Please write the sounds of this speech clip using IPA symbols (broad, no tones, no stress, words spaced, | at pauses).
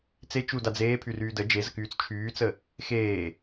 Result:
t͡se t͡ʃuda d͡zeːpʰyryː də d͡ʒezəkyːt͡s t͡ʃʰyːt͡sə | xeː